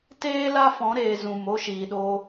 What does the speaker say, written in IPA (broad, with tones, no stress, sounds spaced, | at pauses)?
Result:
t eː˦ l a˦ f ɔ̃˨˦ ɾ eː˨ z ũ˨ m o˦ ʃ iː˨ ɗ o˧